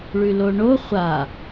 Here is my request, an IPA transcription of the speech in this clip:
ɭ ʉ l o ɳ o χʷ a

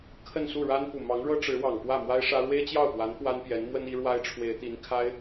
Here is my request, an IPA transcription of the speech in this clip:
kʰ ə˥˧ n s u˥˩ ɻ a˥ n p u˨˩ m ɑ˧˥ ŋ ɻ ɤ˥ ʈ͡ʂ ɻ̩˧˥ w ɑ˨˩ ŋ p w ä˥˩ m w a˥ ɪ̯ ʂ ä˥ ɻ w e˥ ɪ̯ t͡ɕ j ɑ˥˩ ʊ̯ p w a˧˥ n p w a˥ n p j ɛ˧˥ n m w ə˥ n i˧˥ ɻ w a˥ ɪ̯ ʈ͡ʂʰ w e˧˥ ɪ̯ t̪ i˧˥ n kʰ a˥ ɪ̯

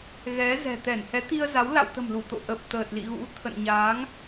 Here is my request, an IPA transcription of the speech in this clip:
ɣ ɛ˨˦ z ɛ̤˨˩ t̪ ɛ˧˩ n h ɛ˨˦ t̪ i˧ ə̯ z a˨˦ w l a̰˧˨ w t̪ ə̤˨˩ m l u˧˩ t̪ o̰˧˨ ʔ ə˨˩ p̚ t̪ əː˨˩ t̚ l ḭ˧˨ ɣ ṵ˧˥ t̪ʰ ə̰˧˨ n ɲ aː˨˦ ŋ

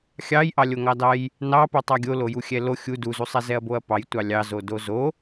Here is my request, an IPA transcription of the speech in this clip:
xʲ ɑ j ʔ ɑ lʲ o ŋ ɑ d ɑ j | n ɑ p o tˤ ɑ ɡʲ o l o j u xʲ ɛ l o xʲ u d u z u sˤ ɛ z ɛ ɐ̯ b o ɐ̯ p ɑ j tʷ ɑ lʲ ɑ z o d o z o

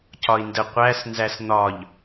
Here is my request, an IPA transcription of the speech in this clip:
c ɒ i̯ n d ə qʷ æ s n z æ s n̪ ɒ ʎ

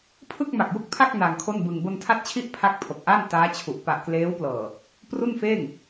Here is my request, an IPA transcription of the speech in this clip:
pʰ ɯ˥˩ k̚ m a˨˩ k̚ j u˥˩ k̚ pʰ a˥˩ k̚ n a˧ ŋ kʰ o˥˩ n b ɯ˧ ŋ b o˧ n tʰ a˦˥ t̚ t͡ɕʰ i˦˥ ʔ pʰ a˦˥ k̚ pʰ o˨˩ k̚ ʔ a˥˩ n t aː˦˥ t͡ɕʰ u˨˩ ʔ p a˨˩ ʔ k l eː˦˥ w p l ɤː˨˩ | p r u˥˩ n f eː˥˩ ŋ

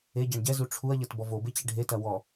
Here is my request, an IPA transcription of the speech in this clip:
e ɟ a ɳ ɟ ɛ z u ʈ͡ʂʰ u ɐ̯ ʎ ɐ t b ɔ v o b e t͡ɕ ɛ ɖʱ e t ɐ w ɔ

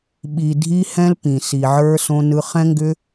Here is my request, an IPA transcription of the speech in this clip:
ɓ i˨ dʱ i˧ h ɛ̃˧ l p ĩ˨ s i˨ ʕ ə˞˧ s õ˧ n ɯ˧ χ ɛ̃˦ ŋ ɡ ʏ˦

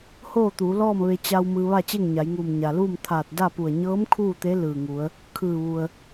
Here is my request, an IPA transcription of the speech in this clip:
h oː˥˨ t̪ uː˩˧ l ɔː˥˨ m ʋ e˧ t͡ɕ a˧ w m ɯː˧ ʋ a˥˨ t͡ɕ e˥˨ ŋ ɲ a˩˧ j ŋ uː˧˩ m ɲ a˩ l uː˥˨ m t̪ʰ aː˧˩ t̚ d a˥˨ p u˧˩ ə̯ ɲ ɤː˧˥ m kʰ uː˥˨ t̪ e˧˥ l ɯː˧˩ ŋ u˩˧ ə̯ | kʰ ɯː˧˩ ʋ u˩ ə̯

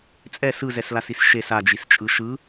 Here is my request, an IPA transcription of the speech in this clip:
t͡sʼ ɛ s ɯ z ɛ s l a s i s ʃ e s a d͡ʒ i s t͡ʃʼ ɯ ʃ ɯ

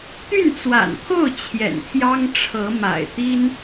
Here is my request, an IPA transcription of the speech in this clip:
t̪ y˥˩ n t͡s w a̰˨˩ n pʰ o˥˩ ʊ̯ t͡ɕʰ j ɛ̰˨˩ n pʰ j ɑ˥ ŋ ʈ͡ʂʰ ɤ˧˥ m a̰˨˩ ɪ̯ t̪ i˥ n

